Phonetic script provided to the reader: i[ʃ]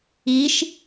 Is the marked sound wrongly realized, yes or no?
no